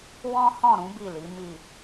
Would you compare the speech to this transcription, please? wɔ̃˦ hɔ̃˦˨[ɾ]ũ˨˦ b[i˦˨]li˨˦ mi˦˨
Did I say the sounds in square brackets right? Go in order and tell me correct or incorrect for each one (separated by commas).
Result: correct, correct